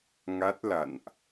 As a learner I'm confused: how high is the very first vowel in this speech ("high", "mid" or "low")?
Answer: low